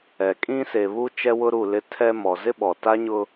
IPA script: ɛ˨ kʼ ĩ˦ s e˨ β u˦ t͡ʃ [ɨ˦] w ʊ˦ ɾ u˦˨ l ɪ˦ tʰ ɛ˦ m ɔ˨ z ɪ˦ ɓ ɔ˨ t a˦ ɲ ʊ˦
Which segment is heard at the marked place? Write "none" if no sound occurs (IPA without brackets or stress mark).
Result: ɛ˦